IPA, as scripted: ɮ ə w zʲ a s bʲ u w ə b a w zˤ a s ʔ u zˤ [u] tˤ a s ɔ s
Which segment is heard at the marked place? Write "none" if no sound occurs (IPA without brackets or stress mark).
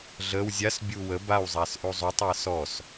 u